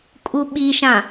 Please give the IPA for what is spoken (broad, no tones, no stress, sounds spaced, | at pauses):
kʼ u ɓ i ʃ ã